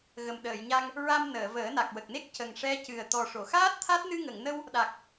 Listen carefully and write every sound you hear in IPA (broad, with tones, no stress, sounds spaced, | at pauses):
ɣ ə˨˩ m ɗ əː˨˩˨ j ɲ a˧ ŋ | ɹ a˧ m n əː˨˩˨ v əː˨˩˦ n a˨˩ k̚ w ə˨˩ k̚ n e˦˥ k̚ c ə˨˩ ŋ ʂ ɛ˧˥ c ɨ˨˩ ə̯ t̪ ɔ˨˩ ʂ o˨˩˨ x aː˦˥ t̚ t̪ʰ a˦˥ t̚ n ɨ˧ ŋ ə˨˩˨ ŋ n ə˧ w | ɗ a˨˩ k̚